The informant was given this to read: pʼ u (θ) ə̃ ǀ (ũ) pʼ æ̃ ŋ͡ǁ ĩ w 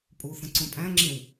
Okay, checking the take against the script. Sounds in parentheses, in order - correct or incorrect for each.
correct, correct

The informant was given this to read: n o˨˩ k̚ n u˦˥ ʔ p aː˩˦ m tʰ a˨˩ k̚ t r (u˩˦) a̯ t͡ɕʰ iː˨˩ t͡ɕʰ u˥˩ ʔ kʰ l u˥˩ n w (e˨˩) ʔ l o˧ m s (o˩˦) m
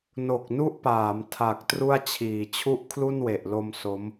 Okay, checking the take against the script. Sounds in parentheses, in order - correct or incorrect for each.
incorrect, correct, incorrect

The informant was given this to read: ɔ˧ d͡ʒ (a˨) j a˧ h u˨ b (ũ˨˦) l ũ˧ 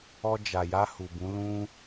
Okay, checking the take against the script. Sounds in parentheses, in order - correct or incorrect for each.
correct, correct

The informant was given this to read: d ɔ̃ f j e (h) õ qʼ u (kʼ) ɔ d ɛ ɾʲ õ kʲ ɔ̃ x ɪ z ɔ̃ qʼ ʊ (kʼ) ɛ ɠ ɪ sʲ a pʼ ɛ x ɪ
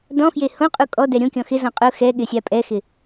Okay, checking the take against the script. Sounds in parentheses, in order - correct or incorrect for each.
correct, correct, incorrect

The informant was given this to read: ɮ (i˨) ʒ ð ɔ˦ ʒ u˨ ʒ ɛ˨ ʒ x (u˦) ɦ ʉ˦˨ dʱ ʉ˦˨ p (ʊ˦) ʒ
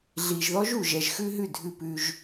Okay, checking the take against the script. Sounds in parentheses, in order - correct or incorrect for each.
correct, incorrect, incorrect

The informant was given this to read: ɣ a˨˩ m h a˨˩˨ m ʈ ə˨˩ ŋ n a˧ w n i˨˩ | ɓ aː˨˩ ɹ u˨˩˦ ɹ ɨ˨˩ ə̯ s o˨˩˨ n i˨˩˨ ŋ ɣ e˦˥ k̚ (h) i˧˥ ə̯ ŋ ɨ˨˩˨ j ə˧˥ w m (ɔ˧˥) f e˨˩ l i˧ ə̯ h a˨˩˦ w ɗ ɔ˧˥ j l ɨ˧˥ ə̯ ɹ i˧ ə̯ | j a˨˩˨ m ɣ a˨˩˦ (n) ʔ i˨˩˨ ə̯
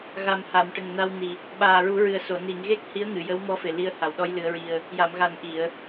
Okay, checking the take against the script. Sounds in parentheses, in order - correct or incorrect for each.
correct, correct, correct

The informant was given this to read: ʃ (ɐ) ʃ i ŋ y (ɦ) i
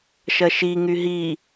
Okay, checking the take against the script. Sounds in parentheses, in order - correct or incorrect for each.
correct, correct

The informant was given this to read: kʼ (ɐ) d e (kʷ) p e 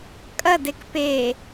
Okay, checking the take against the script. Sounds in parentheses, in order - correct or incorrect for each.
correct, incorrect

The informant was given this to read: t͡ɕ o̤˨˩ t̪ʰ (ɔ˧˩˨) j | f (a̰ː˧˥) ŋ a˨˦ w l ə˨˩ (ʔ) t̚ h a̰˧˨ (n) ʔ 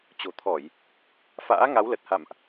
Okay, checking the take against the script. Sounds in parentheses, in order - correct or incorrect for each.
correct, correct, incorrect, incorrect

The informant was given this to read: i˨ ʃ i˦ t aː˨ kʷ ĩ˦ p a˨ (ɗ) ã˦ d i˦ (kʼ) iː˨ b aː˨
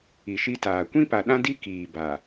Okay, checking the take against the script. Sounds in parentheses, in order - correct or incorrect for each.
correct, incorrect

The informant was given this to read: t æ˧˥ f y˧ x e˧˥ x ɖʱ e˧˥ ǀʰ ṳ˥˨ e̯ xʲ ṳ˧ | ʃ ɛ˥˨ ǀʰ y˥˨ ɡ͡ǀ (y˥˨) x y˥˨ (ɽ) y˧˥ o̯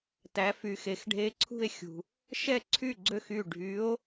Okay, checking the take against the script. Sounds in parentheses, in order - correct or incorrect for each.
incorrect, incorrect

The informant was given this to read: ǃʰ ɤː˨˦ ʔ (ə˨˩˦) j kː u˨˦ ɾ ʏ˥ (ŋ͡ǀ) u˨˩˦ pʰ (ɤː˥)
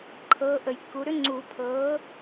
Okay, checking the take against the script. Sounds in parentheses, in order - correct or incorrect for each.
correct, correct, incorrect

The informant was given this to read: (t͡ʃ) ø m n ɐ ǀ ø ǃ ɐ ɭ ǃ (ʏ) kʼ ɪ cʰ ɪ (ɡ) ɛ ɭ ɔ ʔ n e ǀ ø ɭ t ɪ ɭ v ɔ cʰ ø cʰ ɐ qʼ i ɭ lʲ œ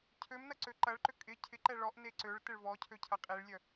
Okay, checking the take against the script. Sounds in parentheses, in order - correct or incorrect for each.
incorrect, correct, incorrect

